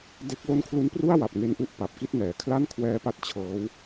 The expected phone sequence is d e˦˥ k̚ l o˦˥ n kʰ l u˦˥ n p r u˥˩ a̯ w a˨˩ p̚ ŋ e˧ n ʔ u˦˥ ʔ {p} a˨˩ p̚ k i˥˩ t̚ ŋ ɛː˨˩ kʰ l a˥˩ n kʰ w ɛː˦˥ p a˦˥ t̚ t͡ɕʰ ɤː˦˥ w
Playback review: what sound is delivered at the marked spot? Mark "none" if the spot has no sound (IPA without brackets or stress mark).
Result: p